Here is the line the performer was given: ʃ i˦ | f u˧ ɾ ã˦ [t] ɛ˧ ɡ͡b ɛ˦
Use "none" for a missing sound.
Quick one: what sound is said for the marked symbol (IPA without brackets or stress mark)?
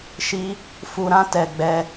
t